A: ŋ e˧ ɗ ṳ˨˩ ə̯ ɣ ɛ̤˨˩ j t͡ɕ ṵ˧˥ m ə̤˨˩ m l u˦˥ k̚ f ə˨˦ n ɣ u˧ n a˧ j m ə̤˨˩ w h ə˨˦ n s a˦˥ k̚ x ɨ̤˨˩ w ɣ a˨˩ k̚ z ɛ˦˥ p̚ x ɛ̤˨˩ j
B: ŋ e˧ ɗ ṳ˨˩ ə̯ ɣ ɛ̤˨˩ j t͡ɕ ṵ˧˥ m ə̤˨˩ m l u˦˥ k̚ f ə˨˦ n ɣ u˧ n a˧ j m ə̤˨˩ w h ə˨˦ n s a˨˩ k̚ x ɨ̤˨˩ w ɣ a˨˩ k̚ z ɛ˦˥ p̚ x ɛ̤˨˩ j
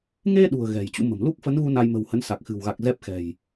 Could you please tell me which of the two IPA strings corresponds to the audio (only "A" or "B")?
B